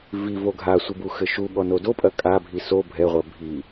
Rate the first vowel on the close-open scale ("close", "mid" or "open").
close